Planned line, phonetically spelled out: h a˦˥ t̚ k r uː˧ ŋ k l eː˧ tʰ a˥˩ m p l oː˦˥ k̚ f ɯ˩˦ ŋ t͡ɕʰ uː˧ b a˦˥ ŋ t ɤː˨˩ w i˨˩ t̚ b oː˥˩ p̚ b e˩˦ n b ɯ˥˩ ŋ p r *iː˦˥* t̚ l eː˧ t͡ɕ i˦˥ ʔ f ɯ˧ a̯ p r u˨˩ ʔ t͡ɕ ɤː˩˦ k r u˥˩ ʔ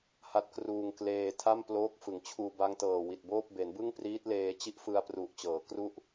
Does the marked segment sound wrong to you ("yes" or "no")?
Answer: no